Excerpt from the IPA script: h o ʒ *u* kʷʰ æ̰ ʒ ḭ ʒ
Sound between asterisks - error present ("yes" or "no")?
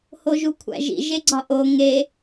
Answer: no